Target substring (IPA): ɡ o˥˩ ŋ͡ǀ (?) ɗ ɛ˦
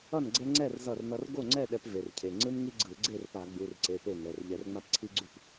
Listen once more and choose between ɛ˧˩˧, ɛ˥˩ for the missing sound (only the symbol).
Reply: ɛ˥˩